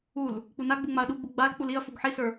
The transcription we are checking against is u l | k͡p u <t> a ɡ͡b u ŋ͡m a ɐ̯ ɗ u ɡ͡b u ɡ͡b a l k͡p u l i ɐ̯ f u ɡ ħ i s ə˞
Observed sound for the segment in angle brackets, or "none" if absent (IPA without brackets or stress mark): n